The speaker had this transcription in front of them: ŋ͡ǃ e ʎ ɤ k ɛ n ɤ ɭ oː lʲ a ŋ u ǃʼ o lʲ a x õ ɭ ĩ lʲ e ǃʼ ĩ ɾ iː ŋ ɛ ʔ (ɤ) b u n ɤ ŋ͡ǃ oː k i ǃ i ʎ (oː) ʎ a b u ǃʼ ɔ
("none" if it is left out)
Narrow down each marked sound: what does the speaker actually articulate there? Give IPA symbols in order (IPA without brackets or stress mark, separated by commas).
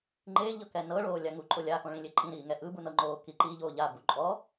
ɯ, oː